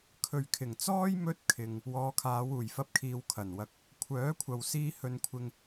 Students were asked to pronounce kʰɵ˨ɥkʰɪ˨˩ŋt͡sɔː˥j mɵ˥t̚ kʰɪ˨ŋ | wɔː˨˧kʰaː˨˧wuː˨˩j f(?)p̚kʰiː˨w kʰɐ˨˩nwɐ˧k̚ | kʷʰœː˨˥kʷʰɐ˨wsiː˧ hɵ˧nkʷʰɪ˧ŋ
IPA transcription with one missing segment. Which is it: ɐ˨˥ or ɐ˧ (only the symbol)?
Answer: ɐ˧